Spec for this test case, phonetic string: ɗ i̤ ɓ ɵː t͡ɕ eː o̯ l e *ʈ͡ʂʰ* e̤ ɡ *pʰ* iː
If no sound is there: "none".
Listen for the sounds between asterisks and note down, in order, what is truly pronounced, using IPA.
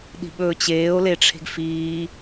ʈ͡ʂʰ, f

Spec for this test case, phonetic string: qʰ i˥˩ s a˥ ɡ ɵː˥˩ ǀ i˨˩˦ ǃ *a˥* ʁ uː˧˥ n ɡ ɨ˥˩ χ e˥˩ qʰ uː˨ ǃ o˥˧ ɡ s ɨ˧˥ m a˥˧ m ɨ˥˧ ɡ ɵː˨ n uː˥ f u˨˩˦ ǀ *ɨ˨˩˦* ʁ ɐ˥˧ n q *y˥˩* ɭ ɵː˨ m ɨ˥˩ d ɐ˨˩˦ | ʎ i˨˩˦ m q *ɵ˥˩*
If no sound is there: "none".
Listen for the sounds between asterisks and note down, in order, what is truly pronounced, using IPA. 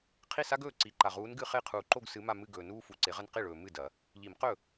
a˨, e˨˩˦, i˥˩, ɵ˥˩

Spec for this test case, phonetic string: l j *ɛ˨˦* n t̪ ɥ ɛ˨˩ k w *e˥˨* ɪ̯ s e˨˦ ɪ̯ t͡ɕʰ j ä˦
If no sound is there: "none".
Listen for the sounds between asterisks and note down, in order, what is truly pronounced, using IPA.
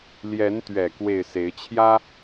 ɛ˨˦, e˥˨

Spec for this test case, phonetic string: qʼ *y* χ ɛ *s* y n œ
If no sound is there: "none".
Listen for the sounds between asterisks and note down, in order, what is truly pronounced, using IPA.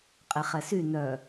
e, s

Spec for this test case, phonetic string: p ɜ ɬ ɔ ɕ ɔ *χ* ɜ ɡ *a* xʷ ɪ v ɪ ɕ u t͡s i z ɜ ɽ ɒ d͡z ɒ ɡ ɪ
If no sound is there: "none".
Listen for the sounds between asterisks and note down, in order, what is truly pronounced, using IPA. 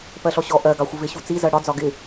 ʔ, ɑ

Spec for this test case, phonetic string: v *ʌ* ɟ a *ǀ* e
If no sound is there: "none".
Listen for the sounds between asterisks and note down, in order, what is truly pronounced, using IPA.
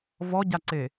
ɔ, ǀ

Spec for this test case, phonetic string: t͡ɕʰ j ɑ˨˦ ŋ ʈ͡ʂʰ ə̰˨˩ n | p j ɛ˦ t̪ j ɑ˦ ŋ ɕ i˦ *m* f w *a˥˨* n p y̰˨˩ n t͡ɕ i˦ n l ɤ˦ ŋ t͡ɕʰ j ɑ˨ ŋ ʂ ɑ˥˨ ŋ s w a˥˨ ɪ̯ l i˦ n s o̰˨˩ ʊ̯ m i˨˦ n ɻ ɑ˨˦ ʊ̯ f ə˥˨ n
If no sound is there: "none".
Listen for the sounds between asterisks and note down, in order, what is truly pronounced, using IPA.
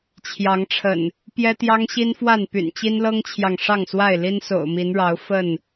n, a˥˨

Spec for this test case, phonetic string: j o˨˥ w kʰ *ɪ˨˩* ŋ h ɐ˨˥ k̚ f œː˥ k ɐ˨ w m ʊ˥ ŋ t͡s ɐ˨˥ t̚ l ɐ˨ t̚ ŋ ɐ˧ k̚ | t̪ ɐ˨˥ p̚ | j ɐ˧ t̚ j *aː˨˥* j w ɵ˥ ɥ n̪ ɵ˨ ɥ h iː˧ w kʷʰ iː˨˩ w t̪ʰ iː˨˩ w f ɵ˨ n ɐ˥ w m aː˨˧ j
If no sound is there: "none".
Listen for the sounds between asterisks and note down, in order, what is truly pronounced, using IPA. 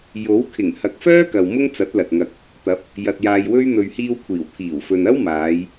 ɪ˨˩, aː˧

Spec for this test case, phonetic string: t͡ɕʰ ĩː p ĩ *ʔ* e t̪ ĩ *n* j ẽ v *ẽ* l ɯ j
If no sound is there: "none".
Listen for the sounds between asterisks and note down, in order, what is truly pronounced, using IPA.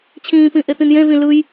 ʔ, n, ĩ

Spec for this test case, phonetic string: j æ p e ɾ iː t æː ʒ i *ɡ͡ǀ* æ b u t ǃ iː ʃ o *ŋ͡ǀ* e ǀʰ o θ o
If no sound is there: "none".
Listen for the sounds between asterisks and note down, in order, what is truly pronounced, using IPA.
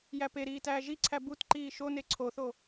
ǀʰ, n

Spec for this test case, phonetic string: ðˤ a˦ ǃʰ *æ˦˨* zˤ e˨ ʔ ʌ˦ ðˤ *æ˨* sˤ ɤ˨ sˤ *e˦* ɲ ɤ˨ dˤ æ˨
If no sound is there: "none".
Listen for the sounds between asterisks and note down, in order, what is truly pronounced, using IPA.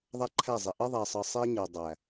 æ˦˨, æ˨, e˦

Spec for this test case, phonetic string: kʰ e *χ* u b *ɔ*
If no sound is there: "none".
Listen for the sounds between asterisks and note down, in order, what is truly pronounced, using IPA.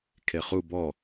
χ, ɔ

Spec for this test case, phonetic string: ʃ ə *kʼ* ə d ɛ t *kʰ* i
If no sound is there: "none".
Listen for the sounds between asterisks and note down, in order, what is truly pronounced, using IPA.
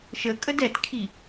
kʼ, kʰ

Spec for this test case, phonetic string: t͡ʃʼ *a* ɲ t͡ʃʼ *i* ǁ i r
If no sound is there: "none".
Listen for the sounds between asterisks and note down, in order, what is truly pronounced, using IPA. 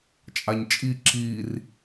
a, i

